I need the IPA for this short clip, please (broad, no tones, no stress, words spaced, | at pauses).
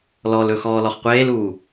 lɔlɵ xɔːlɔχqʷeːluː